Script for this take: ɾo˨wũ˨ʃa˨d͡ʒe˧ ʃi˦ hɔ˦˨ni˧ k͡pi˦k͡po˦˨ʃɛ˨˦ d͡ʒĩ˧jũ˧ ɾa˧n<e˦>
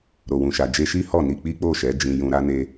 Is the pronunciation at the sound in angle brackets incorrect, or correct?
incorrect